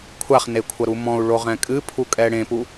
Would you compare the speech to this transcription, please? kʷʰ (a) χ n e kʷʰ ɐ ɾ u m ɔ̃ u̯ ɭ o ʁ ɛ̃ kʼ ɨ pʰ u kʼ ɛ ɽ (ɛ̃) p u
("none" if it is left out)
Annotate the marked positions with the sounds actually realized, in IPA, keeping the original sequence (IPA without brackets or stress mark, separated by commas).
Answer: a, ẽ